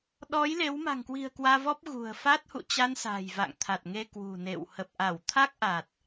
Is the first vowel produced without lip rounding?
no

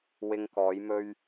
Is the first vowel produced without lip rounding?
yes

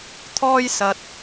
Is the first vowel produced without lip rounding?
no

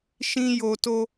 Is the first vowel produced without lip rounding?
yes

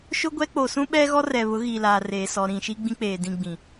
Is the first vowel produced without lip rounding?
no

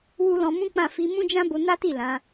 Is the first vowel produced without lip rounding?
no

